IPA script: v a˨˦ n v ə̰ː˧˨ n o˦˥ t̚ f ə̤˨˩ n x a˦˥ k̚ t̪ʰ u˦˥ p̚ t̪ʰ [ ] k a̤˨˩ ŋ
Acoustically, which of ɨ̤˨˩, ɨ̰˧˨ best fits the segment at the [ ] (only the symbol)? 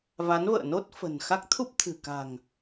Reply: ɨ̤˨˩